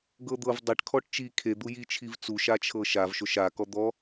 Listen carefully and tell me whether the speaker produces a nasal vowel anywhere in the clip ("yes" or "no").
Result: no